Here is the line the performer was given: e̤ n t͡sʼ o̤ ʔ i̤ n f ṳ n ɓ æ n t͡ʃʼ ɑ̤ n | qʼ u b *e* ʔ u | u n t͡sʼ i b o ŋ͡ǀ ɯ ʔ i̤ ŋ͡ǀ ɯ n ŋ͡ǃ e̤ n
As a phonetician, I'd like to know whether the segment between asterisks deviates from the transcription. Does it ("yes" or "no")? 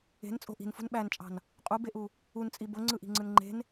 no